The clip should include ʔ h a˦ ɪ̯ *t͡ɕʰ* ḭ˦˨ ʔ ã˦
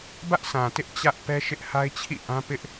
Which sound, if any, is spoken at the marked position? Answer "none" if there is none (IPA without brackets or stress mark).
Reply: t͡ɕʰ